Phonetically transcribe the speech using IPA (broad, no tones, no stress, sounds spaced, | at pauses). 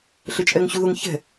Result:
ɬ ɘ t͡ʃʼ ɛ ŋ ɕ u ð ʊ ŋ ç ɛ̤